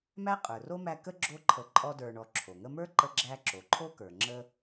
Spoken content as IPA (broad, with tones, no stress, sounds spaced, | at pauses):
m æ˥ qʼ ə˞˩ r o˥ m æ˦ k ə˥ ɡ͡ǁ o˦ ǃʰ ə˨ ǃʼ ɔ˦ d ə˞˨ ɳ ɔ˨ ǁʰ o˩ ŋ ə˦ m ə˞˥ ǃ ə˦ ɡ͡ǁ æ˦ ǁ o˩ ǃʰ o˥ k ə˞˩ ŋ͡ǁ ə˦